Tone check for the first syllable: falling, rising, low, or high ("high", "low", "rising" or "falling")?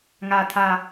low